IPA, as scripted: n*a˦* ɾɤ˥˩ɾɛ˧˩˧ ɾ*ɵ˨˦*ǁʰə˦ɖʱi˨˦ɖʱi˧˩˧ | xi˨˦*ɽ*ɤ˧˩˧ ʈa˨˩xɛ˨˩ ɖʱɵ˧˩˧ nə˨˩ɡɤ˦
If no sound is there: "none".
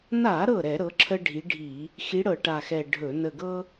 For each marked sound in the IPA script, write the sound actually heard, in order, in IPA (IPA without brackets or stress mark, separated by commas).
a˧˩˧, ɤ˨˦, ɽ